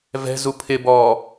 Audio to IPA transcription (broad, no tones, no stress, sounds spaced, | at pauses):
v ɛ̤ z u pʰ ɪ b ɔː